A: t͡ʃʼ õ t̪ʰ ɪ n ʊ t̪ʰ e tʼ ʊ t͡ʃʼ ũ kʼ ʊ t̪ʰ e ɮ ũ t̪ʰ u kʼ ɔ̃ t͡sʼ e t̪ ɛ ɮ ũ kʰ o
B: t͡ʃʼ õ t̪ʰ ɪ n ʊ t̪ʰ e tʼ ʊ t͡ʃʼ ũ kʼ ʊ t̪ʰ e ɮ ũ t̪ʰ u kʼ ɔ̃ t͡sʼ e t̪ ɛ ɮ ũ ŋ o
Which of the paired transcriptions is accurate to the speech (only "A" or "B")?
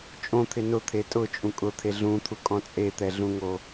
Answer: B